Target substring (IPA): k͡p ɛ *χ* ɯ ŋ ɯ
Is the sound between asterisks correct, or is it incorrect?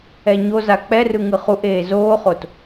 incorrect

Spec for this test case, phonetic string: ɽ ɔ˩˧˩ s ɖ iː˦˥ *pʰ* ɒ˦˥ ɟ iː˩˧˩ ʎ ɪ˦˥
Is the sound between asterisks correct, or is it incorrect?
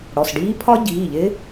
correct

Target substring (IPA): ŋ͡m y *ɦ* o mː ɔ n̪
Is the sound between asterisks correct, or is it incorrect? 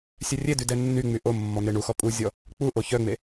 incorrect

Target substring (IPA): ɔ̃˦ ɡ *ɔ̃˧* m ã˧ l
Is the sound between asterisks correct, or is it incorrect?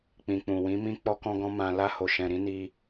incorrect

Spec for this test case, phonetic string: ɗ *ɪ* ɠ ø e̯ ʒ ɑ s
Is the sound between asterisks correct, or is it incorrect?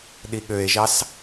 incorrect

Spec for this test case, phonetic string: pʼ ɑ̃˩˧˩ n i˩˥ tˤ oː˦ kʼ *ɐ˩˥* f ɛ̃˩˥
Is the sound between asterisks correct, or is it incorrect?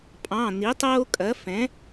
correct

